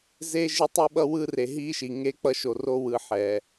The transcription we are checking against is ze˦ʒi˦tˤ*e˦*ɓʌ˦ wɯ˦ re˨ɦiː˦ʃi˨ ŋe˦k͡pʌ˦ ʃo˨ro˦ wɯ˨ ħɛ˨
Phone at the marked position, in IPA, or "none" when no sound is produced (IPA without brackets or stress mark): i˦